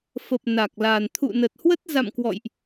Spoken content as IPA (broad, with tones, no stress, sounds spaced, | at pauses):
f ə˨˩ p̚ n a˨˩ k̚ l aː˨˩ n t̪ʰ ṵ˧˨ n ə˨˩ t̚ h w ə˦˥ t̚ z a̰˧˨ m k w ɔ̰˧˨ j ʔ